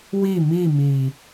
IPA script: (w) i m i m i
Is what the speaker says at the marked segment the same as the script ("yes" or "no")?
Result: yes